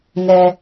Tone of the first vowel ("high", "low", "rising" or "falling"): high